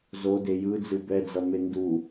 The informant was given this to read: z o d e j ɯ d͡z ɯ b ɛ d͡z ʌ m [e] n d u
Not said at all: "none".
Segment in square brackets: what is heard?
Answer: e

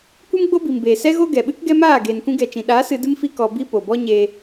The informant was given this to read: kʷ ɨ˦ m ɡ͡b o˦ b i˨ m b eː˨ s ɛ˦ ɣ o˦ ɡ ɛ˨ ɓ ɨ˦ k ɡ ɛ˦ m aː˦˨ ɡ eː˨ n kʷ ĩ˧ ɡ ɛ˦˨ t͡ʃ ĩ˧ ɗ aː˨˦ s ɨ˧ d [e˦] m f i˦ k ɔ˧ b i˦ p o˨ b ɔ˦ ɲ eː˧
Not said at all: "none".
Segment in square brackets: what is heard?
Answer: ɨ˦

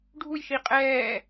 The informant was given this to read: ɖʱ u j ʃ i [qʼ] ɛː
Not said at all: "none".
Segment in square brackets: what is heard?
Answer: qʼ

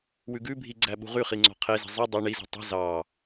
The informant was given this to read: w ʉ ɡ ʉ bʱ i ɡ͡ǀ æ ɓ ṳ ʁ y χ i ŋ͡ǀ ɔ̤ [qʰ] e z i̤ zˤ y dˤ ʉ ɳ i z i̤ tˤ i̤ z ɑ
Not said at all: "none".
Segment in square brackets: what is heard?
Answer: qʰ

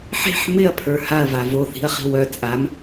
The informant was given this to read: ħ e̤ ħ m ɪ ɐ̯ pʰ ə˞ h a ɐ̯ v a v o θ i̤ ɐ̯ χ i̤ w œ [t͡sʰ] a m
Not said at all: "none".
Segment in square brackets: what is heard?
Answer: t͡sʼ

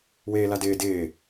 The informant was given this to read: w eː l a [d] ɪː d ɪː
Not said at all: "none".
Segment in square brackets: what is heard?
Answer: d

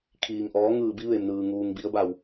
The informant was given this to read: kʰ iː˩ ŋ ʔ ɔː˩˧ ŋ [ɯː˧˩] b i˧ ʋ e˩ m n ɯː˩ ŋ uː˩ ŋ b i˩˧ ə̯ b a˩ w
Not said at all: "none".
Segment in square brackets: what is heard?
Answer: ɯː˧˩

